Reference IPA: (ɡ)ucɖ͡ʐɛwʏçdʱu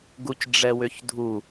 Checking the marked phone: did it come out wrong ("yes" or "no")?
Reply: no